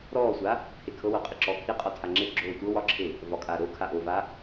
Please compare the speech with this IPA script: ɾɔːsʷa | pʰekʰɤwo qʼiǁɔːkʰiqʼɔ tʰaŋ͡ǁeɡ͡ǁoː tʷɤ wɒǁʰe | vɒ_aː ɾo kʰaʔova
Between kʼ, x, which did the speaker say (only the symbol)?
kʼ